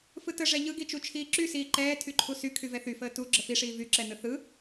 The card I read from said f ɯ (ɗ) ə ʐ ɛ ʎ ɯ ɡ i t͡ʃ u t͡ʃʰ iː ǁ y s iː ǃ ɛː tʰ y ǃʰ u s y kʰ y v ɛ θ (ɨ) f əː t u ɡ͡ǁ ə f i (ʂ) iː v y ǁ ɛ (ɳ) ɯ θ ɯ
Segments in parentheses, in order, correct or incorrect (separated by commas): incorrect, incorrect, correct, incorrect